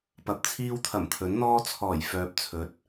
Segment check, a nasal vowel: absent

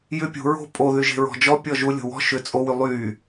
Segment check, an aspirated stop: absent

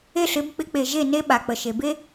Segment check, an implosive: present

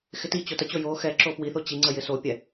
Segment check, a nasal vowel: absent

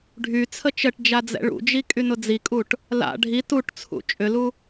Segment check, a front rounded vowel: present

